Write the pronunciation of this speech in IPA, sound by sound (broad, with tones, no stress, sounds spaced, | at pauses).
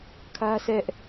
kʰ ä˦ s ɛ˦ ʔ